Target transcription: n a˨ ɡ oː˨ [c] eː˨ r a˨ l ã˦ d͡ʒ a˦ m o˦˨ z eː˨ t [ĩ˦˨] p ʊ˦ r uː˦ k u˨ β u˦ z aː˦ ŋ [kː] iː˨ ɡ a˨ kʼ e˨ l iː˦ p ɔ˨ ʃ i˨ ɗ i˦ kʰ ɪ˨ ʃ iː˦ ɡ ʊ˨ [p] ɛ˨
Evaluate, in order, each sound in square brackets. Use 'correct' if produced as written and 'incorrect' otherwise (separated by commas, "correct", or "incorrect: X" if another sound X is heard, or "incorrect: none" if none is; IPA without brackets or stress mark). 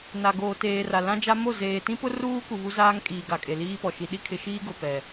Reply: incorrect: t, incorrect: ĩ˦, incorrect: kʼ, correct